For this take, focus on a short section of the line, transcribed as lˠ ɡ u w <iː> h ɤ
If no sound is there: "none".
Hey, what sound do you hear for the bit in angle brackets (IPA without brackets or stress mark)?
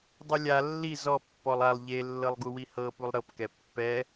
i